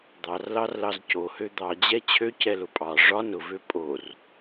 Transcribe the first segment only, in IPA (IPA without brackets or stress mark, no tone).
d̪